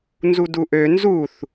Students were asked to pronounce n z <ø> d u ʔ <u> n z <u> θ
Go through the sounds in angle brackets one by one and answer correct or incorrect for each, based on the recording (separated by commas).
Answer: incorrect, incorrect, correct